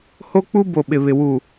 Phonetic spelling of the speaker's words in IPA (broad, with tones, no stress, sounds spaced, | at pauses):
h o˦ k͡p u˦ b o˨ ɓ ɪ˨ β ɪ˨ w u˨